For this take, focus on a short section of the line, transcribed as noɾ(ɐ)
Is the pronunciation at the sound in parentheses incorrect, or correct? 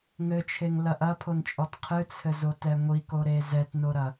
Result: correct